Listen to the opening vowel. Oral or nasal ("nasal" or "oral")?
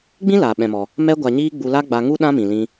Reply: nasal